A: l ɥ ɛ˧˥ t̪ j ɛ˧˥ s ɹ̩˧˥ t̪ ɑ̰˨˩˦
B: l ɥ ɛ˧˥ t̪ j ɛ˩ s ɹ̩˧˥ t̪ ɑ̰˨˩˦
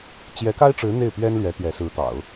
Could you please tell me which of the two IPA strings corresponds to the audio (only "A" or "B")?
A